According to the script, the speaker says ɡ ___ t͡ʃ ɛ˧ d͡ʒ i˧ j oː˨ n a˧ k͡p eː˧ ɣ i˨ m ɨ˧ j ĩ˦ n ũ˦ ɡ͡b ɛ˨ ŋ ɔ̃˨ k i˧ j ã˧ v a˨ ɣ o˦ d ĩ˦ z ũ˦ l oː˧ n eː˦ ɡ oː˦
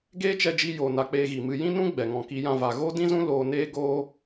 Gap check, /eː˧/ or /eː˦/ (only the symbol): eː˦